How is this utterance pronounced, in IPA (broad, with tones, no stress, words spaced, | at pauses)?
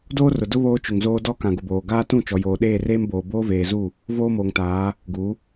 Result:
doː˦rʊ˨ dʊ˦ βoː˦t͡ʃʊ˨ŋzoː˦ dɔ˦ kã˨ɡʊ˨boː˨ ɡaː˦tũ˦˨ t͡ʃɔ˨joː˨ɗeː˦˨ reː˦m boː˨ boː˦veː˨zu˦˨ | voː˦moː˨ŋtaː˨˦ | ɡu˨˦